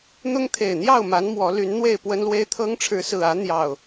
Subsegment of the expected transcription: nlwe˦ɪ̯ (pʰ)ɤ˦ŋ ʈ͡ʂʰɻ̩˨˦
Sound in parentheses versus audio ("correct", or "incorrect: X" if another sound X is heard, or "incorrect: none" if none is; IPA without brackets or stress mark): incorrect: t̪ʰ